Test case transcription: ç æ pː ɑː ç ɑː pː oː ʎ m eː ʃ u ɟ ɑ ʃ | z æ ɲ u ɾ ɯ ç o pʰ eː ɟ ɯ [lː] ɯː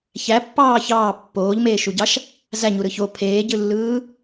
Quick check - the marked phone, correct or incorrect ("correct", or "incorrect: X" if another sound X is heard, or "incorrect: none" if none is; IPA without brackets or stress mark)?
correct